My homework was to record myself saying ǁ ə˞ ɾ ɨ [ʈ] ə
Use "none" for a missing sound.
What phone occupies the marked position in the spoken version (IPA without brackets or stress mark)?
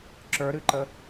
ǃ